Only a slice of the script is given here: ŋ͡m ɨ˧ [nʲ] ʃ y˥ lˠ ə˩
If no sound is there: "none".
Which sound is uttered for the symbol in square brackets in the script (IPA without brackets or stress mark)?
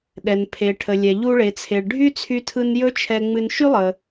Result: n